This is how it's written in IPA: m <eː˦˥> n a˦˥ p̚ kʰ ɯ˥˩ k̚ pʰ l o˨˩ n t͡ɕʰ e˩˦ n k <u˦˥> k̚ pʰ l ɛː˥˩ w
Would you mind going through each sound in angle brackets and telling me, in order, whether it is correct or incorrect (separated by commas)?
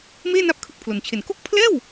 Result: incorrect, incorrect